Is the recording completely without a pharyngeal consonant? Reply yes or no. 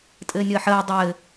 no